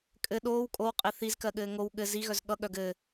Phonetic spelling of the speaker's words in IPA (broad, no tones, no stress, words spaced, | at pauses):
kʼɘ ɗoːw kʼowqʼe θizkɜɠɘː ŋow ɠɘ ziɣœz ɠʌɠœɡ ɘ